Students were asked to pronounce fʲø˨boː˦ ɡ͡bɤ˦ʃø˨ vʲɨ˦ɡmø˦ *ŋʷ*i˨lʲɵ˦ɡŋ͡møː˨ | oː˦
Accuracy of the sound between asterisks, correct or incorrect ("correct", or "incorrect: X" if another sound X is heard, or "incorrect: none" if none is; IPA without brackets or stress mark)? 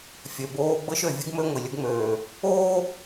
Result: correct